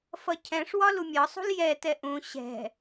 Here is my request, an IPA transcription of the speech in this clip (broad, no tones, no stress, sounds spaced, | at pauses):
f ʌ cʰ ɛ̃ ʂ w ɒ l u mʲ ɒ sˤ ṳ l j ɛ t ɛ ʔ ũ ɕ ɛ̤